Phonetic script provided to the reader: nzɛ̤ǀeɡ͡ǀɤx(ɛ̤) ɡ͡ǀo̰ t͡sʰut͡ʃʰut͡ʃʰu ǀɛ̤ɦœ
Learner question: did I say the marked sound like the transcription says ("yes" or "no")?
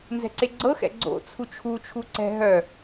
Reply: no